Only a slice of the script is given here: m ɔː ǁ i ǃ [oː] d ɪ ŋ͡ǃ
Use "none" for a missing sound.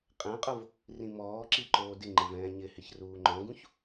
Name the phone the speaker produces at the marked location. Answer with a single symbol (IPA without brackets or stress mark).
oː